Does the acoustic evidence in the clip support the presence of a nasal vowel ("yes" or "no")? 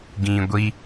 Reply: yes